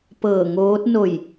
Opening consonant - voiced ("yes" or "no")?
no